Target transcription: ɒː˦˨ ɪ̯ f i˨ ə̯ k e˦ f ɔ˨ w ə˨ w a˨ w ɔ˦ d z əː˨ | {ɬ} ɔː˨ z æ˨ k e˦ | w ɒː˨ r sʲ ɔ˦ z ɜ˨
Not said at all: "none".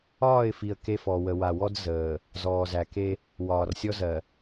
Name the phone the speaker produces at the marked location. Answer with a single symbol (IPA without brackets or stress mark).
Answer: z